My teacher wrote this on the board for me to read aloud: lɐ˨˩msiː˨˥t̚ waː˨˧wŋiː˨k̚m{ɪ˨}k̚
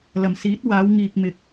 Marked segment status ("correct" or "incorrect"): correct